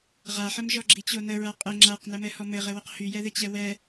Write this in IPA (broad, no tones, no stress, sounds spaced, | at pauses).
ʁ a ħ ɘ m ʒ ɔ ɡ͡ǁ i t͡ɕ o n ə ɹ a qʼ ɘ ŋ͡ǁ a q n ɛ m ɛ h ɔ m ɘ ʁ ɘ w ə q h y j ɛ ð ɘ t͡ɕ ɛ w ɛ